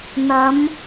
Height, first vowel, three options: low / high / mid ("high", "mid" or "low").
low